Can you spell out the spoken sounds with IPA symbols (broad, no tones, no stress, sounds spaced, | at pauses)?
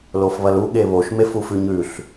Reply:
l o f β ɐ l u ɠ e β o ʃ m e f u f ʉ ɲ ʉ ɬ